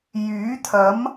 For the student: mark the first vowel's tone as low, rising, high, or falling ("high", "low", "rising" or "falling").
rising